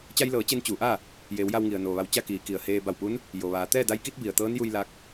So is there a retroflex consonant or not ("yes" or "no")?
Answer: no